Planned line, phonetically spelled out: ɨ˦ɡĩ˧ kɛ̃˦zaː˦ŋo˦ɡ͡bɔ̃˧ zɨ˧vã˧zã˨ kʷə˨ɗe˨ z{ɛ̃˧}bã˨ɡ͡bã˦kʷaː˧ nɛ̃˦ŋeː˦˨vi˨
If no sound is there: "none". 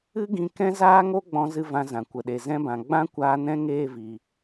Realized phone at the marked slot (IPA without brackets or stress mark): ɛ̃˧